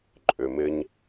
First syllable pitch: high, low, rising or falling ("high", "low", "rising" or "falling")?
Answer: low